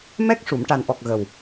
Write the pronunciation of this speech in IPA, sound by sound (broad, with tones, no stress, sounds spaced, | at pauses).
m ɛ˦˥ k̚ ʂ u˨˩˨ m ʈ a˨˩ n ʔ ɔ˨˩ k̚ ɣ ə˨˩ w